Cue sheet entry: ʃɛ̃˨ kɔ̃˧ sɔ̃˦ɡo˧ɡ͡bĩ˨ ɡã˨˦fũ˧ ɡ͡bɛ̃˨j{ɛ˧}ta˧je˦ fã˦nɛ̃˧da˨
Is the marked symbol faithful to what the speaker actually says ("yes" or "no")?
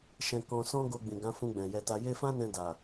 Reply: yes